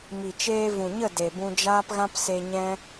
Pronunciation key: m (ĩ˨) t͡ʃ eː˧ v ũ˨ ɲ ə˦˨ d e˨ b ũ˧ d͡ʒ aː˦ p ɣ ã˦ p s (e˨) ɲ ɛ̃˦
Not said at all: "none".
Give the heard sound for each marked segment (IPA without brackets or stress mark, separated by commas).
i˨, e˧